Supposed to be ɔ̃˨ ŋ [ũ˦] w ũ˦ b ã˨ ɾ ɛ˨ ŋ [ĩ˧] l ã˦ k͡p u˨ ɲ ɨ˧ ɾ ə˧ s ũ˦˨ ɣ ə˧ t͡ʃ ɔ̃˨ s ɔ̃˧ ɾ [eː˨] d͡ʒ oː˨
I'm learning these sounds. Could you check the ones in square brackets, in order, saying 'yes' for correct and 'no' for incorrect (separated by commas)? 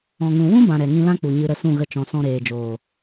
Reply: no, yes, yes